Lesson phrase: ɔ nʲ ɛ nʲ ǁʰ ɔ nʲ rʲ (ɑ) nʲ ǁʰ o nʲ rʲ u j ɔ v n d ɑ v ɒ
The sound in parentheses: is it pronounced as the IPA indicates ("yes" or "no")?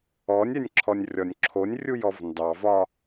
no